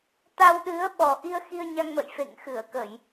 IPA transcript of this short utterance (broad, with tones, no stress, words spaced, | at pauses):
t̪a˧wɗɨ˨˦ə̯ ɓɔ˨˩ʔi˧ə̯ xi˧ə̯ɲa˧ŋmə̰˧˨j fḛ˧˨ŋxɨ˧˩ə̯kə˧˩˨j